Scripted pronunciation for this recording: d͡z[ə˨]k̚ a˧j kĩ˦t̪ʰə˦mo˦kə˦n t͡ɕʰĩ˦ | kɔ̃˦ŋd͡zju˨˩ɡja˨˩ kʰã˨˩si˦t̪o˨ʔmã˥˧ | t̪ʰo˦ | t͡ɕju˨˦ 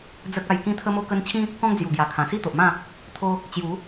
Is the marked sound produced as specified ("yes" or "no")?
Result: no